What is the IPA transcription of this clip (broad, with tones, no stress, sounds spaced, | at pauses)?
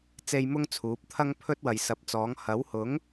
t͡s e˧ j m ʊ˥ ŋ t͡sʰ uː˨˥ p̚ t̪ʰ ɐ˥ ŋ pʰ ɵ˥ t̚ w ɐ˨ j s ɐ˨˥ p̚ t͡s ɔː˨˥ ŋ h ɐ˨˥ w h ʊ˨˥ ŋ